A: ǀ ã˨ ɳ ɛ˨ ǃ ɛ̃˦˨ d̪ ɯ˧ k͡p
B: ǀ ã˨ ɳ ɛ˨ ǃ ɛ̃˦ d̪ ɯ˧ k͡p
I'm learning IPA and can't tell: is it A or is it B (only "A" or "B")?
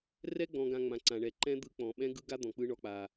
B